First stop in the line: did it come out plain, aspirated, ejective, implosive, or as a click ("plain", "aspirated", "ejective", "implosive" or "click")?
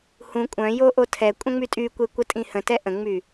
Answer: ejective